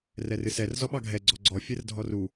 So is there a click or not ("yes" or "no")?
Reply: yes